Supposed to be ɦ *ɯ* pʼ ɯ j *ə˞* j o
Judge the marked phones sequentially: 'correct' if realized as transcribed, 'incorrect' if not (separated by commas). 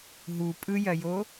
incorrect, incorrect